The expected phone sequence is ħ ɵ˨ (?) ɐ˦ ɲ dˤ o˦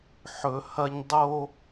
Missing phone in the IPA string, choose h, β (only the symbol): h